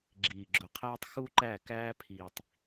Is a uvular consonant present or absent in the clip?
present